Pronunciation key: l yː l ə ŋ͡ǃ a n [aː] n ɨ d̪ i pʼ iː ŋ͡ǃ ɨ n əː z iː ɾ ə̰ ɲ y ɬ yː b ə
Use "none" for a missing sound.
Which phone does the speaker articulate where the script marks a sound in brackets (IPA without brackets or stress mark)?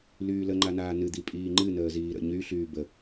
aː